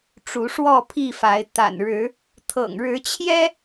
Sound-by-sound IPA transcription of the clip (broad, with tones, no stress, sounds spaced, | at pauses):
ʈ͡ʂ u˨˦ ʂ w ɔ˥˨ pʰ i˥˨ f a˨˦ ɪ̯ t̪ a̰˨˩ n ɻ ɻ̩˨˦ | t̪ʰ ɤ̰˨˩ ŋ ɻ ɻ̩˨˦ t͡ɕʰ j ɛ˦